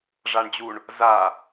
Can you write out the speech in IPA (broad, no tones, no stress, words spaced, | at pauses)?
ʐaɳd͡ʑuɳ | za